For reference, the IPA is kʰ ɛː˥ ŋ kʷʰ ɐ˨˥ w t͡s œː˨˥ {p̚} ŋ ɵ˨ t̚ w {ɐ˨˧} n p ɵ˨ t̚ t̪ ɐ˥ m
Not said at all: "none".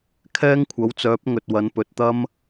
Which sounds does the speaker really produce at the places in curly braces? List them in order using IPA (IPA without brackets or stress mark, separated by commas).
p̚, ɐ˨˧